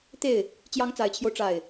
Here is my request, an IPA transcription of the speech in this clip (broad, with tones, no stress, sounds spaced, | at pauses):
t̪ e˥˩ ɪ̯ | t͡ɕ j ɑ˧˥ ŋ t͡s a˨˩ ɪ̯ t͡ɕʰ j o˦ ʊ̯ ʈ͡ʂ a˥˩ ɪ̯